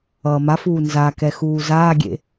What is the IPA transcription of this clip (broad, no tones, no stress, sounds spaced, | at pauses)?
ʌː m a f uː n z a k ɛ x uː z aː ɡʲ ḛ